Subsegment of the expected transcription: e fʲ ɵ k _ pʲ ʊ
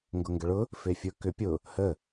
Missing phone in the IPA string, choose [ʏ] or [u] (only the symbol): ʏ